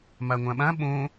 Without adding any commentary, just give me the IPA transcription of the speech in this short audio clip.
m a ŋʷ ã ɓ ã ɓ õ

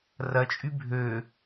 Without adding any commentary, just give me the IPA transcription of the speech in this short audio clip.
r ɐ t͡ʃʼ y bʱ ø

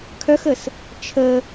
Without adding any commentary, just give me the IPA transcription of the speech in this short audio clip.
kʰ œ x ə s | t͡ʃʰ ə

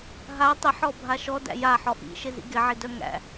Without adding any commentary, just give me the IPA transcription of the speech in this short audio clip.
ɦ a tˤ ɪ ħ ɔ bʱ a ʃ ɔ d æ̰ j a ħ ɔ ʔ ḭ ʃ ɪ z ḭ ɡ ɪ ʕ i d œ ŋ æ̰

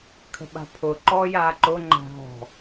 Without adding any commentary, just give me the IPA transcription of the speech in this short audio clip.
kʰ ə̤ ɓ a̤ pʰ ʊ ǃ ɔ j a ǃ ʊ ŋ͡ǃ a̤ ɦ ɔ̤

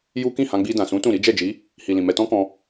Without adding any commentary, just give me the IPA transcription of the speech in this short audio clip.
j u˦ k ĩ˦˨ h ã˧ ɡ͡b i˧ d ã˨ s ũ˨˦ t ũ˦˨ ɾ i˨˦ d͡ʒ ɛ˦˨ d͡ʒ i˨˦ | h i˨ l ĩ˨ m ɛ˧ t ɔ̃˦ k ɔ̃˧

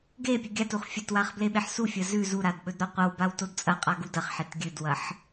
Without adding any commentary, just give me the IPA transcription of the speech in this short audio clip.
ɡ e pʲ ɨ ɡʲ a t u χ fʲ ɐ t w a χ b l e ɓ e ħ s u fʲ ɐ z ʉ z u ɾ a d ɓ ɵ d ɾ o qʷ ɐ w b a w t o d t͡sʼ ɐ qʼ a ɡ u d ɐ χ ħ e t ɡʲ ɨ d w ɐ ħ

